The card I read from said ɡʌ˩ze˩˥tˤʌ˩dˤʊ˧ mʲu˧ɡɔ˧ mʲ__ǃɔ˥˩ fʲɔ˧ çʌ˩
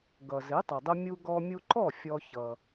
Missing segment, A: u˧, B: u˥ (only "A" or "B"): A